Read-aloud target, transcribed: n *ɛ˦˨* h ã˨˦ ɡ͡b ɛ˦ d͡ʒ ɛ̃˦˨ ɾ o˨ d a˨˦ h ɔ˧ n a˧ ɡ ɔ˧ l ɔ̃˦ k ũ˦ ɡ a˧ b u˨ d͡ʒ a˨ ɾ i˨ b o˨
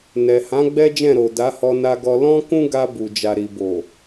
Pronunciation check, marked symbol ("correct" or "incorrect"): incorrect